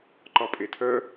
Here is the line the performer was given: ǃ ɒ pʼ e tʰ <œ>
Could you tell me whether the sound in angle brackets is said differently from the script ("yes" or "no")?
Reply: no